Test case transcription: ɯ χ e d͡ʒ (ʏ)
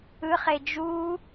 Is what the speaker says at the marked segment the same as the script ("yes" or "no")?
no